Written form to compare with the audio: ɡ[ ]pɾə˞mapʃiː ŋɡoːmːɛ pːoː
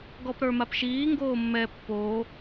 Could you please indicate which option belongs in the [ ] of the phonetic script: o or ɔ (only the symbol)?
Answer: ɔ